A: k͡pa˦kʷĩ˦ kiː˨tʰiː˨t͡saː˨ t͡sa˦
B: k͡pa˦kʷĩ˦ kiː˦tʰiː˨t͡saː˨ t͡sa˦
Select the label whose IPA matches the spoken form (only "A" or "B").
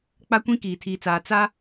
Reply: A